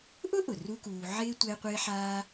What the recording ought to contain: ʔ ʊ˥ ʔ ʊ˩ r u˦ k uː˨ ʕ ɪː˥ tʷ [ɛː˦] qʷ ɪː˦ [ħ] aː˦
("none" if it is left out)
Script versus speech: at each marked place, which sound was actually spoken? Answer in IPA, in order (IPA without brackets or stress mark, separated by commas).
ɛ˦, ħ